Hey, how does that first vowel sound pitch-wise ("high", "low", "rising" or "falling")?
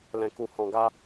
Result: low